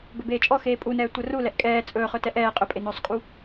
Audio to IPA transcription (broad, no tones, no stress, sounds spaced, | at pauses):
b ɵ b eː t͡ʃʼ ɔ x eː pʼ u n ɛː tʷ ə r u l ɛ ʔ kʼ ɛː t͡sʼ ɵː χ ɵ t ɛ ʔ ɛː qʼ ɵ pʼ e n ɵː sˤ kʼ u